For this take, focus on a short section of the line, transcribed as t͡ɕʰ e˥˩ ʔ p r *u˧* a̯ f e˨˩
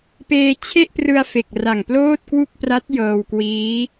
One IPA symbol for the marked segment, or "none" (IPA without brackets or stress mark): ɯ˧